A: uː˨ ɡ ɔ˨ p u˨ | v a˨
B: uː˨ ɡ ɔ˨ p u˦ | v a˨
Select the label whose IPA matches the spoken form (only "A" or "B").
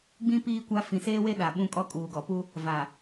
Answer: B